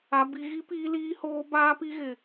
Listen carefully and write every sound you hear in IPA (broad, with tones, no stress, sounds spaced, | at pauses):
a˦ b i˦ ɣ i˦ p iː˦ l iː˦ h oː˦ b aː˦ p i˦ ɣ ɪ˦